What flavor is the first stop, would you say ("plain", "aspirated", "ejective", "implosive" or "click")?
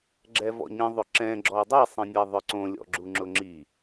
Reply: click